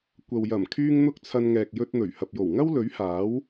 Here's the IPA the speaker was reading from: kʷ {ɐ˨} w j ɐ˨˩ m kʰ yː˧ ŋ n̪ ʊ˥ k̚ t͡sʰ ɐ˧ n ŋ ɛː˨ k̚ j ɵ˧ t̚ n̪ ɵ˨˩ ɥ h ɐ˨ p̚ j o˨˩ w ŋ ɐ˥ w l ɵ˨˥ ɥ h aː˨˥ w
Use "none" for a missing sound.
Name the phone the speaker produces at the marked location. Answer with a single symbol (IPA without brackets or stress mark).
ɐ˨